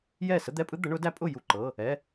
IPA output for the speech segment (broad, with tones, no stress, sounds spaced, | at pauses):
j ɛ˥˩ s ə˥ d̪ ɛ˧˥˧ pʼ ɯ˥ d̪ ə˩˥ ɳ ʊ˩˥ d æ˧˥ pʼ ʊ˥˩ j u˥˩ ǃ ɤ˧˥˧ | ɛ˧˥˧